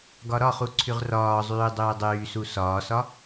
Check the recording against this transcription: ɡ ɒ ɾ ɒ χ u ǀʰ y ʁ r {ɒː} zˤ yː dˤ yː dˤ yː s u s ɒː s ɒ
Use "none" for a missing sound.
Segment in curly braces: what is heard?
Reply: ɒː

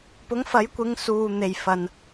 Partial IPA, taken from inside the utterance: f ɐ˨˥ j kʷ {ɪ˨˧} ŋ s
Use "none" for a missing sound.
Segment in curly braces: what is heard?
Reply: ɪ˨˧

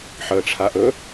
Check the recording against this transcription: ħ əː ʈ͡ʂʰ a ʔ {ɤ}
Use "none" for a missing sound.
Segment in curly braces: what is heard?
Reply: ɵ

